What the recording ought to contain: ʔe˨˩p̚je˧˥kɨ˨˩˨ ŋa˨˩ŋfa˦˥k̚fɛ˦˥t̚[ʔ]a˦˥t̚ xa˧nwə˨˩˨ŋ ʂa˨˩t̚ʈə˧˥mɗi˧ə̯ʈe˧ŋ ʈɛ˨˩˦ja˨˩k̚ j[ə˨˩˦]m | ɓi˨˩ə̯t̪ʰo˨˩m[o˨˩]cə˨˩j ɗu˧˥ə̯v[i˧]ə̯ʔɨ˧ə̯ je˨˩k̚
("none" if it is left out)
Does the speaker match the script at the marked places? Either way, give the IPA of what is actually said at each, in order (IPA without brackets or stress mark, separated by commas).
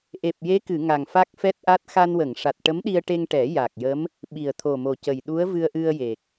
ʔ, ə˧˥, o˨˩, ɨ˧